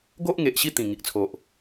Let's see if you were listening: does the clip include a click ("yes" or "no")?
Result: no